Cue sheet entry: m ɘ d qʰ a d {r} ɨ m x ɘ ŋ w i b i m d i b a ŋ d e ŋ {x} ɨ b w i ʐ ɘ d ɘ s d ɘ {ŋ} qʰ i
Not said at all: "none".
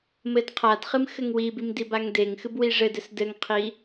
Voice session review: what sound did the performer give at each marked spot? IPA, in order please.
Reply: χ, x, ŋ

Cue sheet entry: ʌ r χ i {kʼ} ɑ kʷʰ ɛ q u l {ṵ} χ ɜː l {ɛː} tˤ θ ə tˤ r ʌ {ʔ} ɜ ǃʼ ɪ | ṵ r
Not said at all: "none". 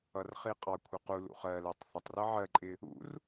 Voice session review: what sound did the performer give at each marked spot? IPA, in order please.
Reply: qʼ, ṵ, əː, ʕ

